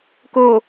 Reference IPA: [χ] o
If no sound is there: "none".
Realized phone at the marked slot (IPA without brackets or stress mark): k